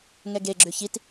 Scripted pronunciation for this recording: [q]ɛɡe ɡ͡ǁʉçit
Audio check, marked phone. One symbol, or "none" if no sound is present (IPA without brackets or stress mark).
ŋ